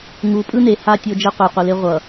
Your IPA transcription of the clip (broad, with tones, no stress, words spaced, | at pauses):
ŋu˨˦pʼɯ˦ne˨ha˦ tʲo˦d͡ʒe˦qʷɯ˨ qʷe˨le˦ ʁʷʌ˨